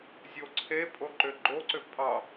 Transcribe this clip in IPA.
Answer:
zʲ o ǀʰ e pʼ o ǃ ʏ ɡ͡ǃ o ǀ ʏ pʼ ɑ

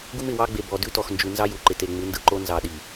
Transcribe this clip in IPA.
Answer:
ɡ u˦ m ɪ˨ w ɑ˦ ɡ͡b e˨ b ɔ˨ d ʉ˦ t ɔ˨ x n d͡ʒ ʉ˨ n z ɑ˦ j u˨ ǃ ɪ˨ t e˨ ŋ͡m ɯ˨˦ n d ɯ˨ ǃ o˦ n z ɑ˨ ɗ i˨

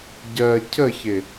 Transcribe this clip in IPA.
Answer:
ɟ ɜ cʰ ə ç ɪ

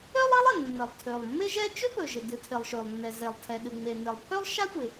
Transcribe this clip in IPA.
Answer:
ø˥ lˠ i˥ lˠ ɪ˩ nː ə˩ lˠ tʰ ø˩ lˠ mː ɪ˥ ʒ ɛ˥ t͡ʃ ø˥ p ɵ˩ ʒ ɪ˩ d ɨ˩ tʰ ɪ˩ lˠ ʃ ø˩ lˠ nː ɛ˩ z e˩ lˠ tʰ ɛ˩ ɗ ɨ˩ ŋ͡m e˩ n ɪ˩ lˠ pʰ ø˥ lˠ ʃ a˥ tʷ ɪ˩

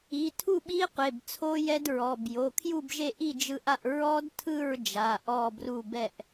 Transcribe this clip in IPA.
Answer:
i˩˧˩ tʰ u˥˨ ɓ i˦˥ qʷ e˩˧˩ b t͡sʰ o˦˥ j ɛ˦˥ d ɹ ɔ˩˧˩ b j o˩˧˩ kʰ j u˥˨ b ʒ e˥˨ ʔ i˥˨ d͡ʒ ɯ˦˥ ʔ a˥˨ ʔ ɹ ɔ˦˥ d tʰ ɯ˥˨ ɹ d͡ʒ a˩˧˩ ʔ ɔ˥˨ b r u˥˨ b ɛ˥˨ ʔ

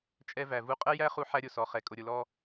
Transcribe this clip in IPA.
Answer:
t͡ʃʼ ɛ˦ v æ˨ v u˦ qʼ ɛ˦ j æ˦ χ u˦ ħ æ˦ ɾʲ ʊ˨ s ɔ˨ χ ɛ˨ kʼ ʊ˨ ɾʲ ʊ˨ l ɔ˦

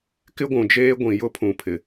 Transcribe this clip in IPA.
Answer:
k ɪ˦ ɡʷ ũ˨ d͡ʒ eː˦ ɡʷ ĩ˨ j ʊ˦ pʰ ũ˨ pʰ ɪ˨

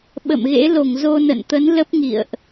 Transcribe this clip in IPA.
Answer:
ɓ ə̰˧˨ m ɣ ḛ˧˥ l o˧˩ ŋ z o˧ n ə̰˧˨ n t̪ ə˨˦ n l ə˦˥ p̚ ŋ ḭ˧˨ ə̯ ʔ

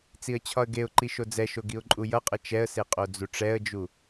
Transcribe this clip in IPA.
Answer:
t͡s i ə̯ t͡ɕʰ ɒ ə̯ ɡ e ʊ̯ ǃ i ʃ o d͡z ɛ ʃ o ɡ i ʊ̯ ǃʼ u j ʌ qʼ ə t͡ʃ ɛ ə̯ s e qʼ o d͡z u ʈ͡ʂ ɛ ə̯ d͡ʒ u

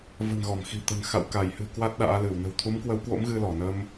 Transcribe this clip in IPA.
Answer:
v ə̤˨˩ n ɣ ɔ˧˩ m x i̤˨˩ t̪ ə̤˨˩ n x a̰˧˨ w k a˧˩ j h ɨ̤˨˩ k w a˦˥ t̚ ɗ a̰ː˧˥ l ɨ˧˩ w n ə̤˨˩ w t̪ʰ u˨˦ m k w ə˨˦ w k w o̰˧˥ m ɣ ɨ˧ l ɔ˧˩ n ə˧ m

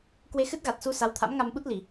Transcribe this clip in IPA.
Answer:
k w e˧ x ɨ˦˥ t̚ ɣ a˨˩ t̚ s u˧ s a˨˦ w t̪ʰ a̰˧˥ m ŋ a˧ m ɓ u˦˥ t̚ l i˧˩˨

